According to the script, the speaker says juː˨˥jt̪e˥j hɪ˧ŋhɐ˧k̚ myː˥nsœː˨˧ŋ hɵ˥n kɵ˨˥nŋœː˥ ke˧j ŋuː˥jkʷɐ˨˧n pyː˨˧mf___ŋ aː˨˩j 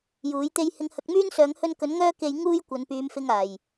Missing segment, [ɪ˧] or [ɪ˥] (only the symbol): ɪ˧